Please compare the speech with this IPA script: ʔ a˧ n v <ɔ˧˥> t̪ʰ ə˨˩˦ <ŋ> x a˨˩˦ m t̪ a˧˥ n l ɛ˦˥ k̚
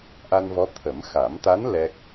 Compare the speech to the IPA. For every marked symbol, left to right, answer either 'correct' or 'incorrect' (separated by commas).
correct, incorrect